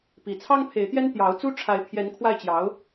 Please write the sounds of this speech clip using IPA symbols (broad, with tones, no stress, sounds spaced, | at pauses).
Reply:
p i˨˩ t͡sʰ ɑ˥ ŋ pʰ e˧˥ ɪ̯ t̪ j ɛ˥ n t̪ j ɑ˧˥ ʊ̯ t͡s u˥ ʈ͡ʂʰ a˧˥ ɪ̯ pʰ j ɛ˧˥ n kʰ w a˥˩ ɪ̯ t͡ɕ j ɑ˧˥ ʊ̯